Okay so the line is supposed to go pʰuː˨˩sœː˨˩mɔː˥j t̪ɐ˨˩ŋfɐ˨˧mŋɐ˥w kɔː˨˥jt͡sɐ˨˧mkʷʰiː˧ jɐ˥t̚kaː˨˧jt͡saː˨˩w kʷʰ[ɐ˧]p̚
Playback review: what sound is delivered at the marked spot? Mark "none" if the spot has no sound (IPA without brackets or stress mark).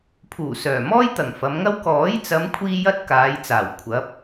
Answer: ɐ˨˥